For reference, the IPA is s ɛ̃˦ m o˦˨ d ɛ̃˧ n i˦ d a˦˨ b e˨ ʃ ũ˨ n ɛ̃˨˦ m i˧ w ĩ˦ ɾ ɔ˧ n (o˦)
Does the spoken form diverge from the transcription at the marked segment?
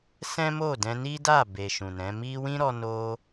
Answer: yes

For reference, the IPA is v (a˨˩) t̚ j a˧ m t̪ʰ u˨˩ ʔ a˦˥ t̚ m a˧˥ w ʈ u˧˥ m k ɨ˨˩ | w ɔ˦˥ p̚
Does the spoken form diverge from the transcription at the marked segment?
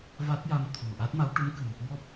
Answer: yes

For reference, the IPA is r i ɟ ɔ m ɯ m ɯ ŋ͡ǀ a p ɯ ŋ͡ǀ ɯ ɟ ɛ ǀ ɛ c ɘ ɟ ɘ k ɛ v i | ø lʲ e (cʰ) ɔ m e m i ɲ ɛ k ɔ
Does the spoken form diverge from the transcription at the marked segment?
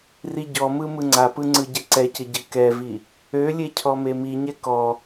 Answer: no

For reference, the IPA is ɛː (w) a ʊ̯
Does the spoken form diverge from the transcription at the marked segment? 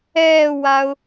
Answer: no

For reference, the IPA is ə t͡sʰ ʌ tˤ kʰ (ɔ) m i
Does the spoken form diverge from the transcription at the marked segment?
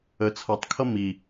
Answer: yes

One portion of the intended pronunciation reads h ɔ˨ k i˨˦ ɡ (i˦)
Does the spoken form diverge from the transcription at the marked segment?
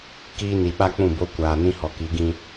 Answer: yes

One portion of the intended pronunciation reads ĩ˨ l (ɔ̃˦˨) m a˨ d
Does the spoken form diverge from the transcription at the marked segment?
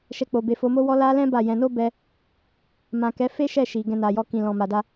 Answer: yes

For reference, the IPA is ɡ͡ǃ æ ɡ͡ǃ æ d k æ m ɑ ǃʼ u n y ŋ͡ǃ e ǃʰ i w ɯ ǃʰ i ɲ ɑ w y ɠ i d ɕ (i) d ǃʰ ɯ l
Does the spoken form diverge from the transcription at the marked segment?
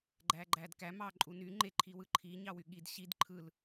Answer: no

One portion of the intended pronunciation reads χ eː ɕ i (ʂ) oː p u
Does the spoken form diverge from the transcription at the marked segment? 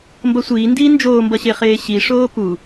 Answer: no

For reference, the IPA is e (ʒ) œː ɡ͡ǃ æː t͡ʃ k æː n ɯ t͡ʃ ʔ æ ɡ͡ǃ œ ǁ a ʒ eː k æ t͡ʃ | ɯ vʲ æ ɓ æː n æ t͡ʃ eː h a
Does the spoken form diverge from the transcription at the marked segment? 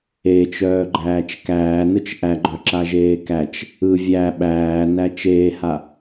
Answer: yes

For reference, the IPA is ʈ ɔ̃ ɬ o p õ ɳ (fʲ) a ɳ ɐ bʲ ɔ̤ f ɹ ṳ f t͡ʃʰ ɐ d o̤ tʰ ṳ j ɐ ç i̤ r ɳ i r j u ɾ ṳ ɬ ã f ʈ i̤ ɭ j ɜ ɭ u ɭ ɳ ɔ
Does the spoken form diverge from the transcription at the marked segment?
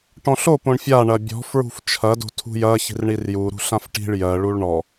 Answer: no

